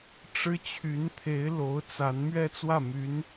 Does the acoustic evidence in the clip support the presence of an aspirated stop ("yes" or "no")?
yes